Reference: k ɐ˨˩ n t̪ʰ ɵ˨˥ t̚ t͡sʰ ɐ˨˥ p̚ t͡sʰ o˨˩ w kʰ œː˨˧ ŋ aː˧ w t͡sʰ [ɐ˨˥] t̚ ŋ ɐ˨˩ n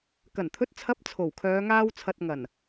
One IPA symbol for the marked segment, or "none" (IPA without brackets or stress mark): ɐ˨